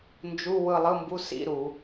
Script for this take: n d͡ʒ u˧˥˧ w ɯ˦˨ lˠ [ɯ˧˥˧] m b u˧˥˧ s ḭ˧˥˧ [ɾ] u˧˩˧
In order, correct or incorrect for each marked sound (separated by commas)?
correct, correct